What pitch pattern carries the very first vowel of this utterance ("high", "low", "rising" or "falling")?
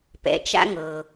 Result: low